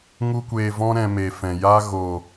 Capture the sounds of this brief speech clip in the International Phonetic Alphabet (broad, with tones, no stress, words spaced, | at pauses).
ŋu˦kʷeː˧vɔ̃˦ ɾɛ̃˧me˨fɛ̃˨ja˦ ɣoː˨